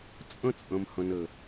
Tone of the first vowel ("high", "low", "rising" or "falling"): high